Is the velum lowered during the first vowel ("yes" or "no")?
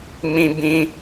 yes